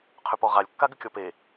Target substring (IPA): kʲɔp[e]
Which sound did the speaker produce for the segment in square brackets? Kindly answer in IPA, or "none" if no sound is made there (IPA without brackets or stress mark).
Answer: e